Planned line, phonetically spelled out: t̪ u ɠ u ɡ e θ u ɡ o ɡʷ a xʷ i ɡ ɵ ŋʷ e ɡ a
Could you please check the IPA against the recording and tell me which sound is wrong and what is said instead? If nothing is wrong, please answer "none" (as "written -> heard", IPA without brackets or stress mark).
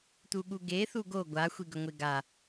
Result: none